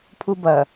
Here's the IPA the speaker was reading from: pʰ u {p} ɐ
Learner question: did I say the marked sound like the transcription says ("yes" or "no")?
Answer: no